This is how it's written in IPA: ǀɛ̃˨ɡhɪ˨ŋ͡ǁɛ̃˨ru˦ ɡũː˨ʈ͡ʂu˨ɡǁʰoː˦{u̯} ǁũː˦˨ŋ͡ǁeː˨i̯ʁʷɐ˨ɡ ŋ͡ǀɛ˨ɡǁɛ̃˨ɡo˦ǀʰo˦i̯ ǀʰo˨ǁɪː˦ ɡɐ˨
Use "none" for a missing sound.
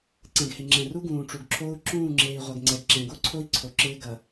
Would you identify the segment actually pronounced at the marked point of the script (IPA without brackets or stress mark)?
u̯